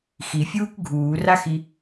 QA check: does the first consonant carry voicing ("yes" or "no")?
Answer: no